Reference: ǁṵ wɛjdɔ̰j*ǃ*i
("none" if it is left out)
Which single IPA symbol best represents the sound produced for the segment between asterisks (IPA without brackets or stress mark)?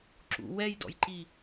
ǃ